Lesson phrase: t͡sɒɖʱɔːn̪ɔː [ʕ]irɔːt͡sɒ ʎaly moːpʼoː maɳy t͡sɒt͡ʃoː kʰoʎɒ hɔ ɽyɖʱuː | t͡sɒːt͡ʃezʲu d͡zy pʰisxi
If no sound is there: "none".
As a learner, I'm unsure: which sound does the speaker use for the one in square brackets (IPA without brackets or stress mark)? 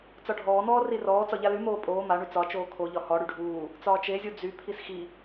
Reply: r